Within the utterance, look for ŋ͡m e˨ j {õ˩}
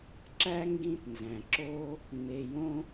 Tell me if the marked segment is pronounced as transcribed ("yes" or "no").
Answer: no